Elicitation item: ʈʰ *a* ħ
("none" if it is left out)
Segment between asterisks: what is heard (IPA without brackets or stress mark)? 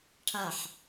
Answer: a